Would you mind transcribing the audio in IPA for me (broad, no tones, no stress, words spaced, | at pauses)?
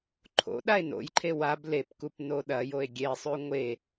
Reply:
ǃʰo̰ ɗae̯no̰jǃʰe wab lepkup noɗɐjoe̯ ɡʲesˤʉ ŋʷe